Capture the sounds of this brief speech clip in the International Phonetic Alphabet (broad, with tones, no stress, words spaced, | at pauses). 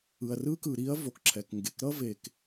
ɯ˩ɐ̯rɯ˥kɯ˩ɾi˥ɐ̯ vo˩kǁʰɛ˩k ŋɡe˩kɾʌ˥ve˩k